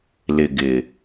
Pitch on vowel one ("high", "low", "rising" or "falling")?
low